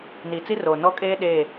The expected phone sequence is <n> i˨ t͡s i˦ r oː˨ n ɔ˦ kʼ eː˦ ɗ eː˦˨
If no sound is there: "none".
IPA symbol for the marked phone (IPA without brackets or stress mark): n